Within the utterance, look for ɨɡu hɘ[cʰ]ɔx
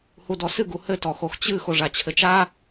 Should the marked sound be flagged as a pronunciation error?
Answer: yes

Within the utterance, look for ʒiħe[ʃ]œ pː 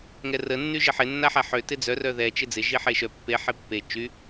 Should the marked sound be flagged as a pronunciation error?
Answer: no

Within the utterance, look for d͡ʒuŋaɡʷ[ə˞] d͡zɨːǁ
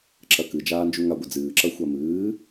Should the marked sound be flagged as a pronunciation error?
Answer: yes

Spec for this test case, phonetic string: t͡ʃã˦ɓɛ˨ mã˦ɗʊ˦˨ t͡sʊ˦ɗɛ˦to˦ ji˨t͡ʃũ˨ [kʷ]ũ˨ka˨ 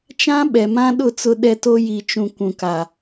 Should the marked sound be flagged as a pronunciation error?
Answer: no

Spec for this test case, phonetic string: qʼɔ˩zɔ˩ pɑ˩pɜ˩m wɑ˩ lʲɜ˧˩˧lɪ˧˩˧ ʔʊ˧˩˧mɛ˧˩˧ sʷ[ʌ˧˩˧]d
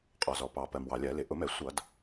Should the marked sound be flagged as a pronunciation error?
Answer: no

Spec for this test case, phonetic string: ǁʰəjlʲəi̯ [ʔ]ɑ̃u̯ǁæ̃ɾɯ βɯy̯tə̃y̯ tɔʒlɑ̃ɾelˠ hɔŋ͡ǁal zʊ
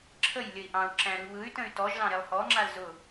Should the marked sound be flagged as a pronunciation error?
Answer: no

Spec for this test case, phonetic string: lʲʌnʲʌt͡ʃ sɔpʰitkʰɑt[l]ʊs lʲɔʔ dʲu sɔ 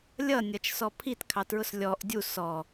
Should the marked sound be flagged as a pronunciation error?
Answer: yes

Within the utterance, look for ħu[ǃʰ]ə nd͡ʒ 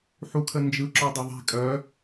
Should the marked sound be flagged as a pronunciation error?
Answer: yes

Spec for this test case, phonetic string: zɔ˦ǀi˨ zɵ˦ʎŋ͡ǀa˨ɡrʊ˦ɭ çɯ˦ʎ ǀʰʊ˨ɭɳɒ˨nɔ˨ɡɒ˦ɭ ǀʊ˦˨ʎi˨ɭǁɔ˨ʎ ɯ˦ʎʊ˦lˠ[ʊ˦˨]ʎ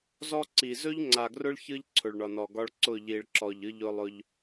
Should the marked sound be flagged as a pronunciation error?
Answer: yes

